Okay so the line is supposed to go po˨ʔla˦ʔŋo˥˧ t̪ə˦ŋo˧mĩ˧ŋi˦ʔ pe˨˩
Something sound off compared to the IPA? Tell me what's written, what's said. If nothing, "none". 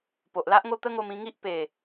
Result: none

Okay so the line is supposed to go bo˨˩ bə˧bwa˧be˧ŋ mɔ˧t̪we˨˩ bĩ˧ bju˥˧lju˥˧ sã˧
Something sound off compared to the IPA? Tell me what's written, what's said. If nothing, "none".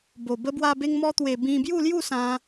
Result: none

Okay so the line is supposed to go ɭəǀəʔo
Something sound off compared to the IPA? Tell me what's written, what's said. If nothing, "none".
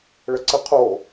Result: ʔ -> qʰ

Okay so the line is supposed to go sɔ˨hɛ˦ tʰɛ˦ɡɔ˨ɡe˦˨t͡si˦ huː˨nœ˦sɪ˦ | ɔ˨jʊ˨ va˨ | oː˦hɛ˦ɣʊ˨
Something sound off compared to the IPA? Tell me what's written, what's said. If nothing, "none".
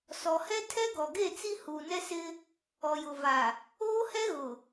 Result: œ˦ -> ɛ˦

